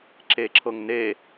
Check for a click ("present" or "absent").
present